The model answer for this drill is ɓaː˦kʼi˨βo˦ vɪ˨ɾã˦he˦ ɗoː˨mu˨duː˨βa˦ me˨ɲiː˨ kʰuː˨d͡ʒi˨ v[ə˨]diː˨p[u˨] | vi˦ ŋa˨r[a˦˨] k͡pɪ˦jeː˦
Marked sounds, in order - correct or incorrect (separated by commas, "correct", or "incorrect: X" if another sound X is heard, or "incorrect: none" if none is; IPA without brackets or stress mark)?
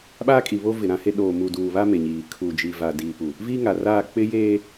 incorrect: a˨, correct, incorrect: aː˦˨